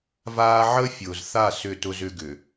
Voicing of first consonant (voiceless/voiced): voiced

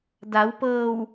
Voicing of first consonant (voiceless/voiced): voiced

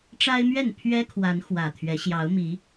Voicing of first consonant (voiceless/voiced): voiceless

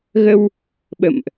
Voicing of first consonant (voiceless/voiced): voiced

